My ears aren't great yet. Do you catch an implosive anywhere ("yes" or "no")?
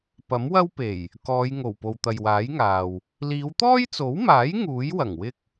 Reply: no